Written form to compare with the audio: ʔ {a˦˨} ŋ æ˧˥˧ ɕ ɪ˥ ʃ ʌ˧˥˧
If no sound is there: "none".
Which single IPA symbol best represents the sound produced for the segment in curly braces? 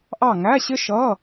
ɑ˦˨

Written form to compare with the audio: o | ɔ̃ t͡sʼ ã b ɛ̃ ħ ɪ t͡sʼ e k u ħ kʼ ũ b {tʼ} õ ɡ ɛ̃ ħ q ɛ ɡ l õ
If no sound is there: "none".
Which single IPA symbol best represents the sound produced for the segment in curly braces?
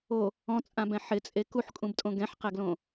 tʼ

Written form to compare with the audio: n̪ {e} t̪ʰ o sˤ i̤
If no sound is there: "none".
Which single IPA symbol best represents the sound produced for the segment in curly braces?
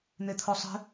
e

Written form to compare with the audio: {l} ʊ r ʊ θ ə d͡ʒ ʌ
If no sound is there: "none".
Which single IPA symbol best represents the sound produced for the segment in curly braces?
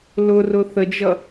l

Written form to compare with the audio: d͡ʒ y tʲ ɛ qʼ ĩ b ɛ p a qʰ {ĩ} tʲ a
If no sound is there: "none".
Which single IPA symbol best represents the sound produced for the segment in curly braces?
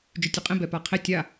i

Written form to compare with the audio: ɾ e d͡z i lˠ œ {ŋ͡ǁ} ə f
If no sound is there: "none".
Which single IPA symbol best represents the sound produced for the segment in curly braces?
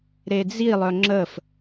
ŋ͡ǁ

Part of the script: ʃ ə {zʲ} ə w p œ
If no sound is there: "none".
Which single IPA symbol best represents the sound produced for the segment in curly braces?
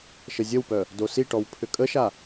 zʲ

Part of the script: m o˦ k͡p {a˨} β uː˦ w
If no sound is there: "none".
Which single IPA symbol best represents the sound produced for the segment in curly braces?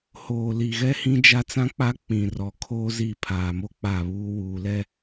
a˦˨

